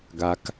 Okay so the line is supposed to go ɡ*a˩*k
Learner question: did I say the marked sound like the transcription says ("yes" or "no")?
yes